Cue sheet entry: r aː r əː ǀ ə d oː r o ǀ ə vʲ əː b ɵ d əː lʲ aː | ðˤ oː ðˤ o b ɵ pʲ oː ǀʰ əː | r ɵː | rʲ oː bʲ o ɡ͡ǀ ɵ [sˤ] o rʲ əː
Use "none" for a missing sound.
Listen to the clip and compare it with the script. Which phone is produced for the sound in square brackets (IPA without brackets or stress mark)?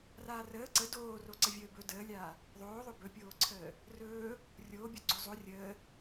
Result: zˤ